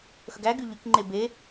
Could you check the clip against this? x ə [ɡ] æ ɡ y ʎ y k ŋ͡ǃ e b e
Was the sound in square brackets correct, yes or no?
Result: yes